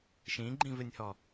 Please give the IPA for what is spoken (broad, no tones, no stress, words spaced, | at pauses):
ʃĩɡ͡ǃĩvɪnʲhɔ